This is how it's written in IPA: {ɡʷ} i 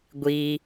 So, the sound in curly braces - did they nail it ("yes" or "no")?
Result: yes